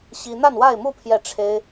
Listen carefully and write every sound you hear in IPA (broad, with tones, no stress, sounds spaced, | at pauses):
ɕ i˥ n̪ a˥˧ n w a˥˧ ɪ̯ m u˥˧ pʰ j ɛ˥˩ ʈ͡ʂʰ e˥ ɪ̯